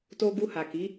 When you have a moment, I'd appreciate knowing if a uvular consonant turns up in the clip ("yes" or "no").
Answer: no